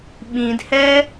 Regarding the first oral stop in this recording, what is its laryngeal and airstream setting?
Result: implosive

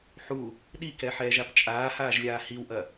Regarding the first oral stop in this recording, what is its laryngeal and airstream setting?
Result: implosive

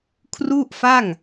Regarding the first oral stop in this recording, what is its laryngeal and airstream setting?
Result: aspirated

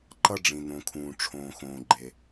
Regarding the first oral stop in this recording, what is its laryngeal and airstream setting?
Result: click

